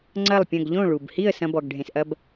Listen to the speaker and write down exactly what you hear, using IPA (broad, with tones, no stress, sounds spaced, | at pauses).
ŋ͡ǀ ɐ˥˩ lˠ pʲ ɐ̃˥˩ ɡ ʎ õ˥˩ ɭ u˩ b h i˥˩ ə̯ s ɐ̃˧ b ɔ˩ ɡ ɖʱ ẽ˩ s ʔ ɐ˧ b